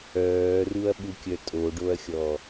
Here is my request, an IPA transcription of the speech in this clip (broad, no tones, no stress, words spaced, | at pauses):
œːruɐ̯ɓukʲœ tʼoɖoɐ̯xʲɔ